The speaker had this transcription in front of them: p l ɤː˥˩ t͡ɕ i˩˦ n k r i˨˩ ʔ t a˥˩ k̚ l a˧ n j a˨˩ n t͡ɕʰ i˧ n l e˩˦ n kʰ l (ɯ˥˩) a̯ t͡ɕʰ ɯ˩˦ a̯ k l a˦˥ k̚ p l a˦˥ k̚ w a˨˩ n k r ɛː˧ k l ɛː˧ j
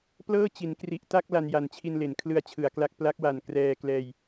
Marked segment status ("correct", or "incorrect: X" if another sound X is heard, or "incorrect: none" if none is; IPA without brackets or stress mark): incorrect: ɯ˧